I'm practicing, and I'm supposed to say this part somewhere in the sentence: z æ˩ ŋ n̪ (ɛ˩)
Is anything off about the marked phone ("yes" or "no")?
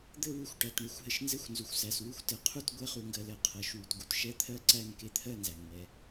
no